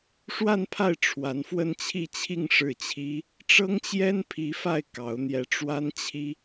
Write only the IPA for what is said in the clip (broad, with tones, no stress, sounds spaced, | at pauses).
ʂ w a˥˧ n pʰ a˥˩ ɪ̯ ʈ͡ʂʰ w a˧˥ n f w ə˥˧ n t͡ɕʰ i˥˧ t͡ɕʰ i˥˧ ŋ ʂ ɻ̩˥˩ t͡ɕʰ i˥ | ʈ͡ʂ ɤ˥ ŋ t͡ɕ j ɛ˥ n pʰ i˧˥ f a˥˩ ɪ̯ k ɑ˧˥ ʊ̯ n̪ j ɛ˧˥ ʈ͡ʂ w a˥ n t͡ɕʰ i˥